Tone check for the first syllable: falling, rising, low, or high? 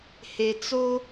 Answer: low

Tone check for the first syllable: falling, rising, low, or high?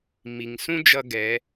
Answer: low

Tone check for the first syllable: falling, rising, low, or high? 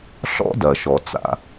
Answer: high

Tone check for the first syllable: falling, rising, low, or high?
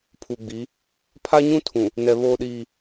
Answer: low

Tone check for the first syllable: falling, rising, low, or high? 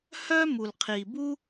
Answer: high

